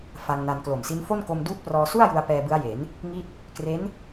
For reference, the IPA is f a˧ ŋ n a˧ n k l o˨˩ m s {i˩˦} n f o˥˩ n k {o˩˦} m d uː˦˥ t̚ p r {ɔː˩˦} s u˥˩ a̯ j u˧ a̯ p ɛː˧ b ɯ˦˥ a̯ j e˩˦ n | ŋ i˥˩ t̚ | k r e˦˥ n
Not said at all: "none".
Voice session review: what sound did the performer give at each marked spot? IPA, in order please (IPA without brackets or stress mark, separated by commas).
i˦˥, o˧, ɔː˧